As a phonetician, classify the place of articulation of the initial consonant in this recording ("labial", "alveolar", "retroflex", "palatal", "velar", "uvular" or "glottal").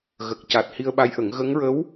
velar